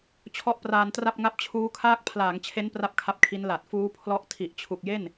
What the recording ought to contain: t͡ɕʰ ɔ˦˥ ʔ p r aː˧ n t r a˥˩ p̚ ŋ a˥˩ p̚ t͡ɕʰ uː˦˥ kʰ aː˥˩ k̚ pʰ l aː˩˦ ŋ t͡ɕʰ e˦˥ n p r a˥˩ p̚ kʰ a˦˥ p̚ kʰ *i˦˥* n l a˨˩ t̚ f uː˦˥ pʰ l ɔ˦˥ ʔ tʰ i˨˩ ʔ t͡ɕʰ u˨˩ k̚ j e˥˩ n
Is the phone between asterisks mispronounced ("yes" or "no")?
no